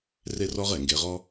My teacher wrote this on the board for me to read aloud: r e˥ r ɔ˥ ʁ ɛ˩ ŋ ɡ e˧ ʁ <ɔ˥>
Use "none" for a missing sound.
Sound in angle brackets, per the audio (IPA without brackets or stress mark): ɔ˥